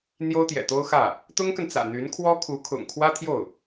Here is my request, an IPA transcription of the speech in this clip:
n̪ j o˥ ʊ̯ t̪ j ɛ̰˨˩ t̪ o˥ ʊ̯ x ä˥˩ | t̪ ʊ˥ ŋ k ə˨ n t͡s ä̰˨˩ n̪ y˧˥ n kʰ w ɔ˥ kʰ u˧˥ kʰ ʊ̰˨˩ ŋ kʰ w ä˥ t̪ʰ j o˥˩ ʊ̯

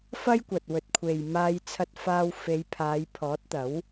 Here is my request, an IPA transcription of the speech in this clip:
f ɐ˥ j kʷ ɐ˨ t̚ w ɵ˨ t̚ kʷʰ e˨ j m aː˧ j t͡sʰ ɐ˧ t̚ f aː˧ w f e˨˧ j pʰ aː˨˧ j pʰ ɔː˨˥ t̚ t̪ ɐ˨˥ w

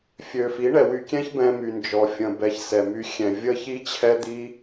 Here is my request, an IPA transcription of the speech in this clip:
fʲ ø˨ f i˨˦ ɳ ɛ˨ w y˧ kʲ ɛ̃˦ ç b ɛ̃˧ m y˨ n d͡ʒ ɔ˨ fʲ ə̃˨ b ɛ˨ ç s ɛ˨ m y˧ xʲ ɛ̃˨ vʲ ə˦ ç i˦ t͡ɕʰ ɛ˦ d̪ i˦

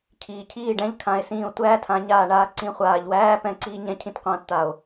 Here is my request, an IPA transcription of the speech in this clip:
cʰ iː˨ cʰ iː˦˨ ɖ ɛ̃˦ ʎ kʰ ã˨˦ e̯ s ĩː˧ o̯ tʷ æː˦ tʰ ã˨˦ ɲ aː˧ ɳ aː˦ ǀ ĩ˦ χʷ aː˧ ʎ w æː˦ p ɛ̃˦˨ ǀ iː˦ ɲ ɛ̃˦ cʰ ĩ˦ t qʷ ãː˧ t t̪ a˨ o̯

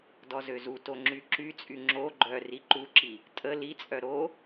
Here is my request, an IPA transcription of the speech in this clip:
d ɔ z ø z u t o ŋ͡ǁ y ǁ y t͡sʼ y ŋ͡ǁ o ɡ͡ǃ œ r i ǃ u ǁ i | tʼ ə l i t͡sʼ œ ɾ o

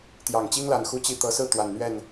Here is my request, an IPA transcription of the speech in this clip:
t̪ j ɑ˨˩ ŋ t͡ɕ i˦ ŋ l a˨˩ n x u˥˨ t͡ɕ i˥˨ t̪ ɤ˨˦ s ɹ̩˥˨ t̪ w a˨˩ n n̪ ɥ ɛ˥˨ n

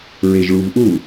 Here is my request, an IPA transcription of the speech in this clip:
ɹ e ʒ ɭ u v ʔ u

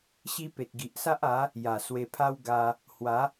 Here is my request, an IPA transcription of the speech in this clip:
ɕ i˦ p e˨ t̚ ɡ i˨ ʔ s a˦ ʔ a˨˦ | j a˨˩ s w e˧ pʰ a˦ w ɡ a˧ | h w a˨˦

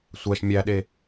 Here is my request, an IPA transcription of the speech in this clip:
sʷ æ ʃ mʲ æ ɗ e

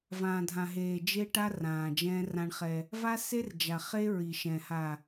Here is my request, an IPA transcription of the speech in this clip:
v ãː˨ dʱ ã˨ ɦ eː˨ d͡ʒ e˦ ʈ a˦ r ãː˨ d͡ʒ ɛ̃ː˦ r ã˦ ɳ χ ɛ˦ | v a˦ s e˦ r d͡ʒ a˨ χ e˦ ɹ i˨ ʃ ɛ̃˨ h a˨

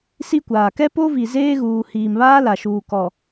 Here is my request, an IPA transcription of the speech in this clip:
s i˦ kʷ aː˨ k ɛ˦ p o˦ v i˨ z eː˦ ɣ uː˨ h iː˨ m β aː˦ l a˨ ʃ uː˨ k ɔ˨

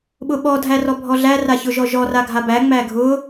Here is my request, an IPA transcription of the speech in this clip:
ɓ ʊ ɓ ɔ dʱ æ r ɔ bʱ ɔ ɮ æ r a ç ʊ ʒ ɔ ʒ ɔ r a ɡʱ a b æ ŋ͡m æ ɡʱ ʊ

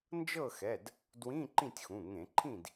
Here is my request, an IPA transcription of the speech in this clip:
n d͡ʒ ɤ˥˨ x ɛ˩˧˩ d | d w ĩ˧˥˧ ǃ ĩ˥˨ tʲ x ũ˩˧˩ ŋ ẽ˧˩˧ ǃʰ ĩ˥˨ d

